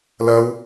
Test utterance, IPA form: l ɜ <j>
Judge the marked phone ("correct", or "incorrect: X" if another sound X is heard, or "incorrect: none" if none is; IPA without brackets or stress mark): incorrect: w